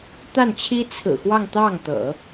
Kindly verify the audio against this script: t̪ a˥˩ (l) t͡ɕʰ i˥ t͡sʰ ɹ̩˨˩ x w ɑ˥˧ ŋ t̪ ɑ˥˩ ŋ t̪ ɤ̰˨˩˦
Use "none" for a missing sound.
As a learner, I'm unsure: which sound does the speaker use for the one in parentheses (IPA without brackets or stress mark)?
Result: n